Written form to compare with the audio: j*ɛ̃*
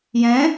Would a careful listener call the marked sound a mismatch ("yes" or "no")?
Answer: no